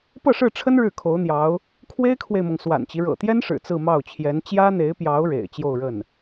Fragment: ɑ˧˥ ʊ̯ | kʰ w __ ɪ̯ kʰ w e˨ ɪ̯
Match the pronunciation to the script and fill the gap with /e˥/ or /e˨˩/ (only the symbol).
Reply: e˥